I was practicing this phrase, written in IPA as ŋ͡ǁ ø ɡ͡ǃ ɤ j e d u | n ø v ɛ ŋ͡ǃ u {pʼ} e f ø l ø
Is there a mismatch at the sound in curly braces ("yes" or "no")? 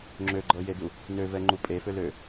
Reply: no